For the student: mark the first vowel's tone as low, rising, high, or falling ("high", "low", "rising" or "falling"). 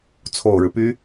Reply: low